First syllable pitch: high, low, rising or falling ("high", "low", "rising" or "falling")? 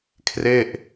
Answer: falling